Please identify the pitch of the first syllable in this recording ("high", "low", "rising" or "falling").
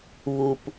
low